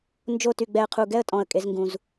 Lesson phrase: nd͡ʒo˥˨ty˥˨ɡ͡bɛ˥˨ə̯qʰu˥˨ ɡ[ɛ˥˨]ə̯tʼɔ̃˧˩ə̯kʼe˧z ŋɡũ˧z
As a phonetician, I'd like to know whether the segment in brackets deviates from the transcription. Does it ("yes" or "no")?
no